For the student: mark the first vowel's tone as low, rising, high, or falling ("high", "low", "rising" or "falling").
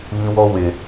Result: high